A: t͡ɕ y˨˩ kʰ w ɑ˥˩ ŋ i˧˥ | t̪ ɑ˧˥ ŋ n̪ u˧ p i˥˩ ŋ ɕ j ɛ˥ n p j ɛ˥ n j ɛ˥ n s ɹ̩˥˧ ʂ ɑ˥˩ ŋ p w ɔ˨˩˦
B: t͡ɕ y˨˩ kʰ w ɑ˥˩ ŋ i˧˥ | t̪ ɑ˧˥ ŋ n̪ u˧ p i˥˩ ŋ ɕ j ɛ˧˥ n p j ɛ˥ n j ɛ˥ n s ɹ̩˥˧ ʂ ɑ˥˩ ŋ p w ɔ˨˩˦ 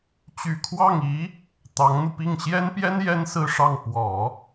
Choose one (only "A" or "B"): A